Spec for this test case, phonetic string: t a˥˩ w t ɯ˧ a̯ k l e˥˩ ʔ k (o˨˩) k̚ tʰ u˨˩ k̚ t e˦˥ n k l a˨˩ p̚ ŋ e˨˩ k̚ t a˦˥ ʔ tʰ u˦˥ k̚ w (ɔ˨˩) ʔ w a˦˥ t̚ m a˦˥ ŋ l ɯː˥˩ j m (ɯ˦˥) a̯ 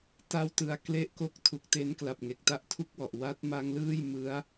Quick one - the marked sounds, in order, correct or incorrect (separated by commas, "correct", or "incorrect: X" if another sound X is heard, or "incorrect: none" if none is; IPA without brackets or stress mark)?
incorrect: o˥˩, correct, correct